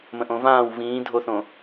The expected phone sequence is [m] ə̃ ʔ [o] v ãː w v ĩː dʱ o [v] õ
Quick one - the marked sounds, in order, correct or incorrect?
correct, incorrect, incorrect

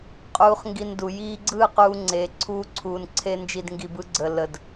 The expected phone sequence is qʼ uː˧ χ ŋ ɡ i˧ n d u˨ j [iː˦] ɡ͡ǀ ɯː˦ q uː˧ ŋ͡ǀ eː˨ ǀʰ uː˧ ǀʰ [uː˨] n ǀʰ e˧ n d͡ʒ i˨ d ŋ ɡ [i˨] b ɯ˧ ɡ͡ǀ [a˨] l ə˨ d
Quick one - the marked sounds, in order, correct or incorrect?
incorrect, correct, correct, incorrect

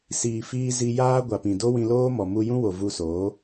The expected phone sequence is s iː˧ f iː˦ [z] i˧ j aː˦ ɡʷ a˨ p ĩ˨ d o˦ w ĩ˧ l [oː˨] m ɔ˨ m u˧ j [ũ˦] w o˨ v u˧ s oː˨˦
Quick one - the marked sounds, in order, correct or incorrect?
correct, incorrect, correct

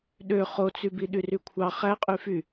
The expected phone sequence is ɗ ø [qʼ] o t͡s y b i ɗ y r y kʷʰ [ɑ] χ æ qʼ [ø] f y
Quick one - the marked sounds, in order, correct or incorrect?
incorrect, correct, incorrect

